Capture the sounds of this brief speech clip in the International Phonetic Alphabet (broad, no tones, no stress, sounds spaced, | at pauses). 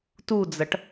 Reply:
t u d͡z ɐ ʈ